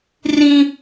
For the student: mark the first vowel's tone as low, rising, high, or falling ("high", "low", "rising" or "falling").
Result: high